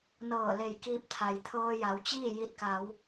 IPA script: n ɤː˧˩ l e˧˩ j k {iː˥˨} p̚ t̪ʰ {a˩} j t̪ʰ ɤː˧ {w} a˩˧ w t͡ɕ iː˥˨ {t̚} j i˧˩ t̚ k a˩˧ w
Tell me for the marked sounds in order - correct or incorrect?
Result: incorrect, correct, incorrect, incorrect

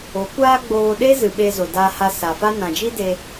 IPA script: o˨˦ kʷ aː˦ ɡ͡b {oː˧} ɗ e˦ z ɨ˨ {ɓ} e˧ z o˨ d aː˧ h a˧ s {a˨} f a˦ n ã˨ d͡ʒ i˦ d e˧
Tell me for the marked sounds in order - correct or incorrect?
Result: correct, correct, correct

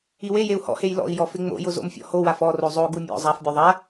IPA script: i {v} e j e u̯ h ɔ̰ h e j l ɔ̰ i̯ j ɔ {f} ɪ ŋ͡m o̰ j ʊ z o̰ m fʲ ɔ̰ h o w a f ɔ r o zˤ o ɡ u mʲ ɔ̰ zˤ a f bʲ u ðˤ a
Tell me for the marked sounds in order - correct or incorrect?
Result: incorrect, correct

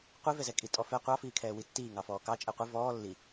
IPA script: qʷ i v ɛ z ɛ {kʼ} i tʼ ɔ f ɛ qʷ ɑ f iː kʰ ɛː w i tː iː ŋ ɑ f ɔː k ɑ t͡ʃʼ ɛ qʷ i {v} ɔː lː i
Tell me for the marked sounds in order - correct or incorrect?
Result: correct, correct

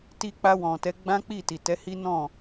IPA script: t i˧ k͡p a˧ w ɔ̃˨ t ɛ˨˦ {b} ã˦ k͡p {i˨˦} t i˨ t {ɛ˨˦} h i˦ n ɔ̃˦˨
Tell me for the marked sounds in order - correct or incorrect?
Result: incorrect, incorrect, correct

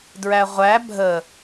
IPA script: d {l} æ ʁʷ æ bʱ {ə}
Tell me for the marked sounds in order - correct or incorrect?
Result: incorrect, correct

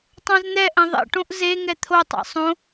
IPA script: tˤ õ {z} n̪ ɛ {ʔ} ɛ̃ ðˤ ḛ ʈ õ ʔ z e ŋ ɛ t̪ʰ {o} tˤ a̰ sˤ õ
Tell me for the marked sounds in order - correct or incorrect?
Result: correct, correct, correct

